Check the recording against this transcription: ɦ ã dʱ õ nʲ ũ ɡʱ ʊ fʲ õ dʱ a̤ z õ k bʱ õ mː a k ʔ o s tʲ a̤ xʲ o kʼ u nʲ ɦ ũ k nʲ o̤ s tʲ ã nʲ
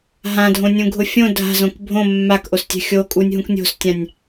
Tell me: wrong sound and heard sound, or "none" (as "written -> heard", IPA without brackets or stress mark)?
none